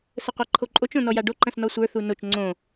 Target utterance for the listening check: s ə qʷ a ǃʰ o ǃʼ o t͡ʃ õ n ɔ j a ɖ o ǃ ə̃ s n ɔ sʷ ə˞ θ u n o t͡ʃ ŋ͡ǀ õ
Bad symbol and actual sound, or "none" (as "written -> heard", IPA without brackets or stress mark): none